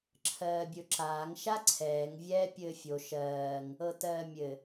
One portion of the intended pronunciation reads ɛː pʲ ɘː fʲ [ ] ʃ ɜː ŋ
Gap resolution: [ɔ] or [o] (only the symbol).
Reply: o